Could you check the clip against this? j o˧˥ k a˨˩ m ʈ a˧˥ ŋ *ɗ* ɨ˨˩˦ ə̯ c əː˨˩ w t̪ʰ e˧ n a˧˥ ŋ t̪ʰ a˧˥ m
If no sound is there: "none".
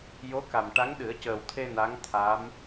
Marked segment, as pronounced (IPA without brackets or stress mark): ɗ